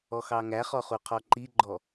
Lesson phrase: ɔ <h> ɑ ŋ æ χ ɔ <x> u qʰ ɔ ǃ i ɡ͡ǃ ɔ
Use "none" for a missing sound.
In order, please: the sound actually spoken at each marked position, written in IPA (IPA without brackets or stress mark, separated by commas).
x, χ